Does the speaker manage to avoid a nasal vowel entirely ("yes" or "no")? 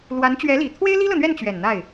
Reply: yes